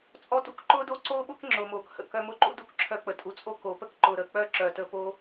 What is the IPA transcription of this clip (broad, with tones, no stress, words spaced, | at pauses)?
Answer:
t͡sʼɔ˧tṵ˦k ǃʊː˦do˦ ǀoː˦ɓʊ˦k ŋ͡ǁʊː˨moː˨khə̰˨ kœ˧mʊ˦ǃṵ˦ du˦˨kǁʰœ˧k͡pə˨ tʼu˨t͡sʼo˧ ko˨˦pə˦k ǃʊː˧ɾəː˧ k͡pœː˦ǁœː˨təː˧ po˦